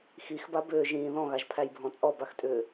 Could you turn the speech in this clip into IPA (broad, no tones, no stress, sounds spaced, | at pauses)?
x i x b a b ʏː ʒ ĩː ð ɔ̃ ɣ a ʒ pʰ æ j bʱ ɔ̃ t͡sʼ ɔ b a x tʼ ʏː